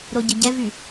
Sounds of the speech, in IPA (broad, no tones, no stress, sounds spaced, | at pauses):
ɾ o ɟ ə ɟ ɛ v y